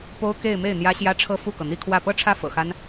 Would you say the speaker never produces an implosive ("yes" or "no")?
yes